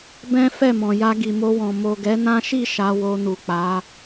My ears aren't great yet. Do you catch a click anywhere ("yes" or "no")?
no